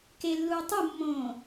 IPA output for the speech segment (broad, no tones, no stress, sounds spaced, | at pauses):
k e lː uː tˤ u mː õː